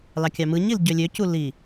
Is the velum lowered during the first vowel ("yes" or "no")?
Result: no